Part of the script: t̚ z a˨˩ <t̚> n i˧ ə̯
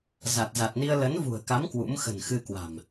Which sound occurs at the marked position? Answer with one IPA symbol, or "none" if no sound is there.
t̚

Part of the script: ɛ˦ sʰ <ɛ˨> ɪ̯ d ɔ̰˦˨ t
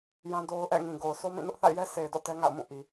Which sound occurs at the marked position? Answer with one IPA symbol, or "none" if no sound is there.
e˨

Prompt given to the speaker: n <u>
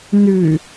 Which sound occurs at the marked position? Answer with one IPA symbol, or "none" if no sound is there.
ʉ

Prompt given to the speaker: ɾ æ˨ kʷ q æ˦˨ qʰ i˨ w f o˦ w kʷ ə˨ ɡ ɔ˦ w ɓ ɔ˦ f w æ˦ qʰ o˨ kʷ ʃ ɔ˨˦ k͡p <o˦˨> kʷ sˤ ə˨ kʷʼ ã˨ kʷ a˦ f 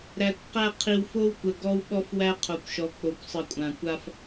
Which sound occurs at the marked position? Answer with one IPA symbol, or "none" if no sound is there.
o˨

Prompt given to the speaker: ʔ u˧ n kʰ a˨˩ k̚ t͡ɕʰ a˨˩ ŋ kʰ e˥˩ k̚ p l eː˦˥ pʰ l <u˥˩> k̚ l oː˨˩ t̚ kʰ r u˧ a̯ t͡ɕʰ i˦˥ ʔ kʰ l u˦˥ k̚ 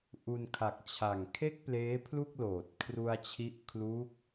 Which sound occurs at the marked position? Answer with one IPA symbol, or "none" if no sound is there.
u˥˩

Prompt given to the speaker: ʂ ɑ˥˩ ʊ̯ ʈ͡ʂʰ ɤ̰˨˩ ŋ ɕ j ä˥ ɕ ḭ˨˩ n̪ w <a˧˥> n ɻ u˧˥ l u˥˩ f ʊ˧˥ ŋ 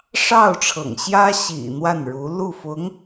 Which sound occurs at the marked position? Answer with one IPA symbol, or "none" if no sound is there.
a˥˩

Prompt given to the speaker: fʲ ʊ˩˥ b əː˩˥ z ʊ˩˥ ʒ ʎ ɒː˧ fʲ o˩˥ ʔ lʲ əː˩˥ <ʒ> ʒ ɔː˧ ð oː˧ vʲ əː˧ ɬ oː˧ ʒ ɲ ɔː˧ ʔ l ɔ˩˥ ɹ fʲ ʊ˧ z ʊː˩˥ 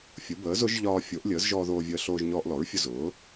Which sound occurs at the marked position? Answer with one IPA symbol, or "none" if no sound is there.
z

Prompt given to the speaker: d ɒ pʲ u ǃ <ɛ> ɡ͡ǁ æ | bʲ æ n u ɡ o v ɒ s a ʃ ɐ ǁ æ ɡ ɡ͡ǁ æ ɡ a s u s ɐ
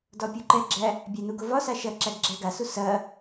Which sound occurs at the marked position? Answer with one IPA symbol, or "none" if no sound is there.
ɛ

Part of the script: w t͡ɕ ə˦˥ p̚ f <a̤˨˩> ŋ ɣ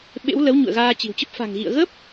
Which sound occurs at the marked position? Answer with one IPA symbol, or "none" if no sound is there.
a̤˨˩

